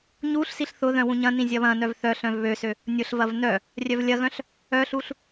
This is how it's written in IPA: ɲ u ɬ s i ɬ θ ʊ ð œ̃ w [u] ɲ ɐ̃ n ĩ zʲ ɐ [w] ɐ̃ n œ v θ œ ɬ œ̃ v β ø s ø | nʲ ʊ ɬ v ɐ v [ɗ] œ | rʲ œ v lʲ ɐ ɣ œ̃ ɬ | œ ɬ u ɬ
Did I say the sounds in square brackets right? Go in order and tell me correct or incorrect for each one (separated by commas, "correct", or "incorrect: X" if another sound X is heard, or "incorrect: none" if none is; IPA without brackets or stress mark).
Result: incorrect: ũ, incorrect: β, incorrect: n